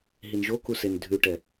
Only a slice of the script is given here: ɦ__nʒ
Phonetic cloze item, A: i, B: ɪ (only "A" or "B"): A